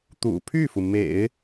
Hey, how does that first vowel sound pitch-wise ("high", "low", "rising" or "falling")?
low